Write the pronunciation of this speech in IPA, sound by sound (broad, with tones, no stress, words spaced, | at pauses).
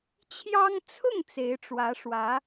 t͡ɕʰjɑ˥ŋ t͡sʰʊ˥˩ŋ t͡se˧˥ɪ̯ʈ͡ʂwä˧˥ʂwä˧˥